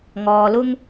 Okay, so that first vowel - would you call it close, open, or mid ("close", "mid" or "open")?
mid